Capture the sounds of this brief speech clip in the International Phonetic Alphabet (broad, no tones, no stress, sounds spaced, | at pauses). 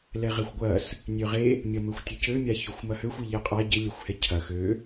l ɛ ʁ ɛ xʷ ɡʷ ɐ s | nʲ ø ʁ e | mʲ ɐ m ø xʷ tʲ ɐ c ø mʲ a ç ø xʷ m ɐ h ø xʷ i ʎ ɛ qʼ a ɟ ɪ lʲ œ xʷ h ɛ cʰ ɐ x ø